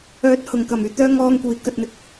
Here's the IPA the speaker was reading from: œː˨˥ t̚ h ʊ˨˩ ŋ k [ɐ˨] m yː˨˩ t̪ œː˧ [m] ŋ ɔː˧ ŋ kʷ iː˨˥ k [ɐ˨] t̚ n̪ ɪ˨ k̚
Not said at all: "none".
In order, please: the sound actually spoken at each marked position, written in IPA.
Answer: ɐ˨˩, none, ɐ˨

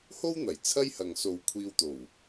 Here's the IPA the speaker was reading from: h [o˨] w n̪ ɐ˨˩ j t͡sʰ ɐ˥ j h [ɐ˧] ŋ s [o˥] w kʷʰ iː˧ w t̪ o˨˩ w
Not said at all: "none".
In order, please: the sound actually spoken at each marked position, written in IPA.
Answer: o˥, ɐ˨, o˨

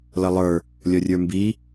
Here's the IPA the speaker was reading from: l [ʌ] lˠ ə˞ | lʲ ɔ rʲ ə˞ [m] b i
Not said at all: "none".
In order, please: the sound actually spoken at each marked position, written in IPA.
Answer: ʌ, m

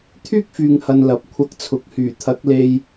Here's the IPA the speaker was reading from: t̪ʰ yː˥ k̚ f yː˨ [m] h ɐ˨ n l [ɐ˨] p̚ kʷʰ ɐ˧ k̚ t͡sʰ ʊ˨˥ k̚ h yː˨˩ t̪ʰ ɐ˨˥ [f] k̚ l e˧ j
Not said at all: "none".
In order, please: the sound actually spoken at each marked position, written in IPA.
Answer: ŋ, ɐ˨, none

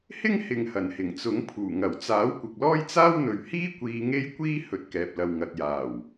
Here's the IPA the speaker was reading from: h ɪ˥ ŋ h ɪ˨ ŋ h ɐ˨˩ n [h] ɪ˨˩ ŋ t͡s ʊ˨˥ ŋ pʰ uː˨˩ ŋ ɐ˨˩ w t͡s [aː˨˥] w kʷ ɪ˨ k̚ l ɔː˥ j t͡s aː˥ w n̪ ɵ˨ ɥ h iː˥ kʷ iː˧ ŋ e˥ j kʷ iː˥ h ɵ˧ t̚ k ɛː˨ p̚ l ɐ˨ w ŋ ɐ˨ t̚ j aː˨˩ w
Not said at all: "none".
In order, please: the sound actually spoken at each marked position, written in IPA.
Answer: h, aː˨˥

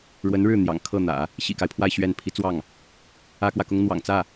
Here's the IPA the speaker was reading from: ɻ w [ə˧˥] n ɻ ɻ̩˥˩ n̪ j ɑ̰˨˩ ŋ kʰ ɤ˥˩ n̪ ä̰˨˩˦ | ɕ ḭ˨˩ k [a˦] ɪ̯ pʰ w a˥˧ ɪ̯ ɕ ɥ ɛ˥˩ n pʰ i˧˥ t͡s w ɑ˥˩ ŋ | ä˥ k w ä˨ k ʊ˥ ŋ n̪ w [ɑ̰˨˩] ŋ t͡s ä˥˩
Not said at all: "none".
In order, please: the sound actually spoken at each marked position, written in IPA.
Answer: ə˧˥, a˦, ɑ̰˨˩

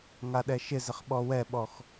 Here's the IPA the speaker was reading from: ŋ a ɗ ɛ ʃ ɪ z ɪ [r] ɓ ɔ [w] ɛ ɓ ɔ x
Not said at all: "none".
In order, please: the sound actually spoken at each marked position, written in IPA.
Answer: χ, w

